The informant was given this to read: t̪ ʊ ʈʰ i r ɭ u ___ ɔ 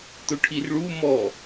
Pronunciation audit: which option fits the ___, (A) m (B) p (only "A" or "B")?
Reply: A